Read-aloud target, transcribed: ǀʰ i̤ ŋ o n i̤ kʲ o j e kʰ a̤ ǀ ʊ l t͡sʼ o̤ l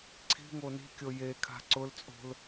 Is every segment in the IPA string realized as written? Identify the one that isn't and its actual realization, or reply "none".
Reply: none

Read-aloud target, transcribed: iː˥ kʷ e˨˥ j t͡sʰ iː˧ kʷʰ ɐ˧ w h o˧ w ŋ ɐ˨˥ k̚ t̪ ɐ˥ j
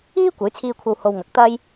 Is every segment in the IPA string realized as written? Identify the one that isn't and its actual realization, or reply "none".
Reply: none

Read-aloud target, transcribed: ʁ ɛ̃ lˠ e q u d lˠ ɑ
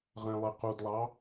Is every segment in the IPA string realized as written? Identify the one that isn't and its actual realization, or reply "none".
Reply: none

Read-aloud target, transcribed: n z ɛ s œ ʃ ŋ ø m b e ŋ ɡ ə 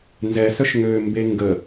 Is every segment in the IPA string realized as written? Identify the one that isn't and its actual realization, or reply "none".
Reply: none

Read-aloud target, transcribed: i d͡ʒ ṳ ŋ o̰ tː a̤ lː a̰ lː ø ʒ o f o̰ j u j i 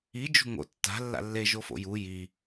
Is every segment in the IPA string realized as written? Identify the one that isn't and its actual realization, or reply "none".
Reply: ø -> e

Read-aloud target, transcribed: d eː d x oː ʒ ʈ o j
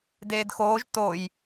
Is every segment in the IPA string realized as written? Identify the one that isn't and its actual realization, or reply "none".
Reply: ʈ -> t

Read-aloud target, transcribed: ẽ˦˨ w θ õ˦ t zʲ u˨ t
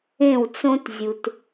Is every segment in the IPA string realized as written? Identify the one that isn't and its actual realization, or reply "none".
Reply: θ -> t͡s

